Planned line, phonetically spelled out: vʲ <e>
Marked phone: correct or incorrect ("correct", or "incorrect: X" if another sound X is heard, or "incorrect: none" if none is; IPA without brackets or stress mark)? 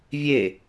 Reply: correct